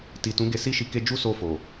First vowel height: high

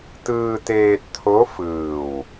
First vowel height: high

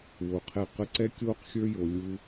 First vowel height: mid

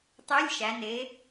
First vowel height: mid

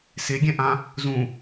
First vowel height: mid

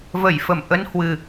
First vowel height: mid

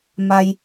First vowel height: low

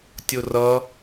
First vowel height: mid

